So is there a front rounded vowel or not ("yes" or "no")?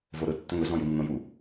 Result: no